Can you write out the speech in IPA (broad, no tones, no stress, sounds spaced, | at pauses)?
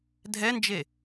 dʱ ɛ n d͡ʒ e